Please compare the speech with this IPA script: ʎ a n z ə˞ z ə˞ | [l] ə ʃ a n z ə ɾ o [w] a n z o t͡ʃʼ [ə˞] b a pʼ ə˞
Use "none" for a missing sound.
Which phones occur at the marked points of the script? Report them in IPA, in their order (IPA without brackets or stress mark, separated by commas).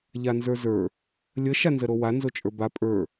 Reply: lʲ, w, ə˞